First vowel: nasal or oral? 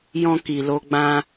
nasal